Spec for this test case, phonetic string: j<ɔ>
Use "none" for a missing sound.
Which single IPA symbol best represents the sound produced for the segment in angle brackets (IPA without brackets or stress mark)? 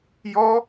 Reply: ɔ